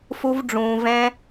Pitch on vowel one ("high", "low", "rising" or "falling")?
high